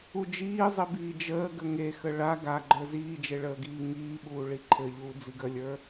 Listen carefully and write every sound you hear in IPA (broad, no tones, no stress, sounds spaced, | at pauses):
u d͡ʒ iː zˤ i b iː d͡ʒ əː ɡ ə ŋ e x ə ɭ a ɡ a ɡ͡ǃ ə˞ z iː d͡ʒ e ɭ əː ɡ iː ŋ iː ɓ uː ɭ i ǃʰ ɘ ʎ uː d͡z i ɡ ə lʲ ə˞